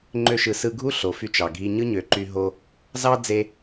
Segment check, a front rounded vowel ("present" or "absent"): present